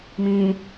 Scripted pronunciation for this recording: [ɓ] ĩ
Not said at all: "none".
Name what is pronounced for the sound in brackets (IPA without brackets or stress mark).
m